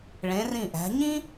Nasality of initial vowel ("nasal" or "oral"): nasal